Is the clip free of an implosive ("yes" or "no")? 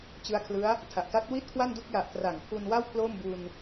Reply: yes